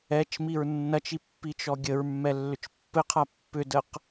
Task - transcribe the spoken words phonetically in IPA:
ɛt͡ʃmiɹ nːɐt͡ʃi pːit͡ʃɔɡʲəɹmːɛ lːʏt͡ʃpːɘqʰa pːʏdəq

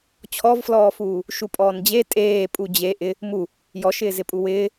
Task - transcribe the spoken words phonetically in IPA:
t͡ɕʰɔvflɔːfuː | ʃupʼɔːnd͡ʑe tʼeːpʼu d͡ʑe ʔɪ | mu | jɔʃɪː zɪpʼuwɪː

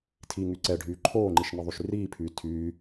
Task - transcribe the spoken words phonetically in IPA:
tʰiŋy ǀɛɖʱyː ǃʰoːŋ͡ǃiʃniðˤyʃ riːpʰyː tʰyː

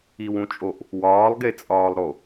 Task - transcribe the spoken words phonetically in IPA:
iwũt͡ʃʼoʔ | wɒːlˠɡet͡sʼɒːlˠɾo

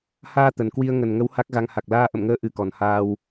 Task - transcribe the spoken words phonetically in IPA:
haː˧ t̪ə˨˩nkwi˧ə̯ ŋə˨˩nŋə˨˦w ha˦˥k̚ɣa˧ŋ ha˨˩k̚laː˧ʔə̰˧˨mŋəː˧ ʔɨ˧kɔ˨˩nhaː˧w

